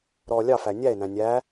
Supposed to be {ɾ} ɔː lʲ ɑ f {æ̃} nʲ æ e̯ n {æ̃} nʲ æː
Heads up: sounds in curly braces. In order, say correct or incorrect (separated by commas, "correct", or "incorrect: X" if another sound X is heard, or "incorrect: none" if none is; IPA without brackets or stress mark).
correct, incorrect: æ, correct